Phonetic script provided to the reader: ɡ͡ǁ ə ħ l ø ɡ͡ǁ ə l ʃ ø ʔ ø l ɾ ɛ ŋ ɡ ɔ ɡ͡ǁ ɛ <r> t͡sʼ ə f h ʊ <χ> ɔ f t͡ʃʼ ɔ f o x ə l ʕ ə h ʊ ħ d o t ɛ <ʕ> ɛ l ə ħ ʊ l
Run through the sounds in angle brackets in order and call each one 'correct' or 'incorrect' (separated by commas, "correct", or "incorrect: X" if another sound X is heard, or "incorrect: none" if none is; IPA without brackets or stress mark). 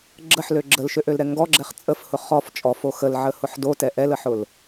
incorrect: χ, correct, incorrect: ʔ